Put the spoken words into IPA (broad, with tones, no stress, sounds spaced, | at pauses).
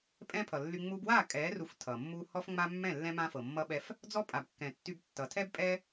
pʼ ɛ̃˦ pʰ ʌ˨ lː y˧ ŋ͡m u˧ b w a˦˨ kʼ ɛ˨˦ r u˨ f tʰ ʌ˨ mː u˦ h ɔ˦ f ŋ͡m a˦ mː ɛ̃˦˨ lː ɛ̃˦ m ã˦ f ɤ˨ mː ʌ˧ ɓ ɛ˧ f | d͡z ɔ˦ pʼ a˨ b kː ɛ̃˨ tː y˧ b tː ʌ˨ tʰ ɛ˦ b pʼ ɛ˦